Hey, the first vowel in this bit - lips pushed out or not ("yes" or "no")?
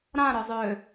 no